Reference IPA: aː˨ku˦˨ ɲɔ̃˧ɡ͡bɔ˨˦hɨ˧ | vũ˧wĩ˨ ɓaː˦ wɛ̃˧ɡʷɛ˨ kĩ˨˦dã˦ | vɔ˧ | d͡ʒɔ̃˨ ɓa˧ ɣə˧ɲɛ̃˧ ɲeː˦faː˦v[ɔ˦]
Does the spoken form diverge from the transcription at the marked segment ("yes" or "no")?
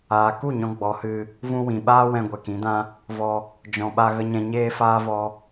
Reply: no